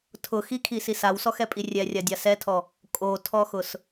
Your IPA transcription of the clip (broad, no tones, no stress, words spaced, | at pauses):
tʰʊxikʰisis awsɔxɛpʼi rʲɛrʲadʲa sɛtʰɔ | kʼotʰɔxʊs